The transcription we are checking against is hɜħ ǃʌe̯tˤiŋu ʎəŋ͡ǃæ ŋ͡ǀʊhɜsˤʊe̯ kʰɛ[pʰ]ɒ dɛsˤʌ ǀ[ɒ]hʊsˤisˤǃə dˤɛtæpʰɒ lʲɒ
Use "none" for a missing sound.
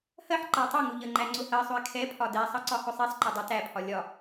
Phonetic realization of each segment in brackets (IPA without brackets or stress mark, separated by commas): pʰ, ɒ